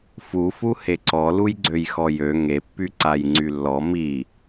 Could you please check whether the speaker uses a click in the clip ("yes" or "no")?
yes